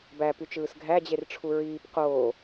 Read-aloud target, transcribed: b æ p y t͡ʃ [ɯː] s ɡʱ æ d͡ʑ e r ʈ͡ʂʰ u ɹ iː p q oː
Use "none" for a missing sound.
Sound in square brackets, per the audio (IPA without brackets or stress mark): ɯː